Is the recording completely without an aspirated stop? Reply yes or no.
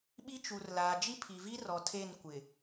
no